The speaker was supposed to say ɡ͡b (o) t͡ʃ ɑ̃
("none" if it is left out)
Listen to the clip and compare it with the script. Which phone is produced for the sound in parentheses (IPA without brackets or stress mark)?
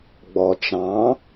ɔ